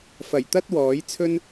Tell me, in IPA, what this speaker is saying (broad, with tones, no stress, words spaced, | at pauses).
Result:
fɐ˨˩jt̪ɐ˥t̚ wɔː˨˥jt͡sʰɵ˥n